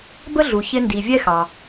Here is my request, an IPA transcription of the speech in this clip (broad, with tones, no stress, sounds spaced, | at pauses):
b ə˥ ɮ u˩ ç ɪ˧ n d i˩ vʲ ɛ˥ x ɑ˩